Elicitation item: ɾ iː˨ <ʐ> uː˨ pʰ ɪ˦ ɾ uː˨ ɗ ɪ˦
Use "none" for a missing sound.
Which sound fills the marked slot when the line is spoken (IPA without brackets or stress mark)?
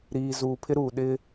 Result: z